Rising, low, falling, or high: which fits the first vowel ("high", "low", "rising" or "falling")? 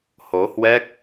rising